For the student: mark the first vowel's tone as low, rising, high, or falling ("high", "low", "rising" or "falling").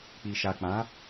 low